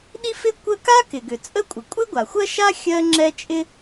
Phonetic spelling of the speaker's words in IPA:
ɗ i˥ f ɪ˥ kʷ ə˥ k a˥ k ɪ˩ ɡ ʏ˩ t͡sʼ ə˥ kʷʼ ə˩ kʷʼ ɪ˥ ɡʷ a˩ xʷ ɜ˥ ʃ a˥ xʲ ɜ˥ ŋ͡ǁ ɛ˥ t͡ʃʼ ɪ˥

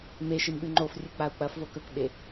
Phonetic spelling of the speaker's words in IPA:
m e ʃ i m ɓ ʉ ŋ͡ǃ o f rʲ ɨ k͡p a u̯ k͡p ɐ f v o k ɵ k ɓ e

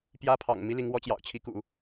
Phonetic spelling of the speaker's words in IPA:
p j ä˥ pʰ ɑ̰˨˩ ŋ m i˥ l i˧˥ ŋ w ɔ˧˥ t͡ɕ j ɑ̰˨˩ ʊ̯ t͡ɕʰ i˧˥ k ṵ˨˩˦

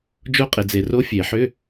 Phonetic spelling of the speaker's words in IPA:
d͡ʒ o˦˥ qʼ e˨ d͡z e˨ r o˦˥ fʲ e˨˩˦ ħ ʏ˧˥˧

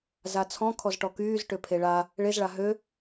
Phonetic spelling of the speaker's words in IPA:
z a t͡sʰ ɔ̃ kʰ ɔ z ʈ ɔ k yː z ʈ ø pʰ e ɭ a | ɭ e z ɭ a ɦ ø

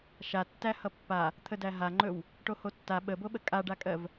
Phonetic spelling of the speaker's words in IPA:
ʃ a tː æ h ʌ pː a | t̪ʰ ə d æ ɦ a ŋ͡ǃ ɵ w | ʈ o h o tː a ɓ ə b o ɓ ə kʼ a ɖ a kʼ ɜ v

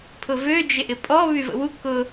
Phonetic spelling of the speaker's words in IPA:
pʰ ʊ v ø d͡ʒ ɪ ʔ ɪ pʼ ɔ β y v ə̰ w u k ʊ

